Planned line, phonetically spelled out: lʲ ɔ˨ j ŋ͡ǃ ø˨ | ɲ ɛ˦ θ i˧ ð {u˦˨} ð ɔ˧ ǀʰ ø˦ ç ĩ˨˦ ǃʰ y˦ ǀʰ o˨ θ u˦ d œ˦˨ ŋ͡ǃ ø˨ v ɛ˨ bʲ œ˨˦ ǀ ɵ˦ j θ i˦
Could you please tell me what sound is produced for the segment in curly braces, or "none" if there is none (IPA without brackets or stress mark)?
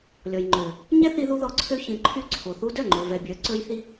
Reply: u˧